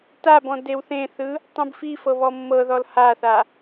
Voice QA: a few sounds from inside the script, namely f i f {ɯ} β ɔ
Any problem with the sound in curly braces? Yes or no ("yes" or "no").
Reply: yes